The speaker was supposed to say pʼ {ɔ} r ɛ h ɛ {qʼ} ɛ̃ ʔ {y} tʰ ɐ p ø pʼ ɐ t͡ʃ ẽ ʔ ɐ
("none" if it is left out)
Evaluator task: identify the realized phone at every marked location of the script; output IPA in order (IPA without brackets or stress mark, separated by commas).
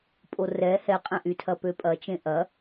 o, qʼ, y